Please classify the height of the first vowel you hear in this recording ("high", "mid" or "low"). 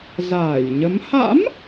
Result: low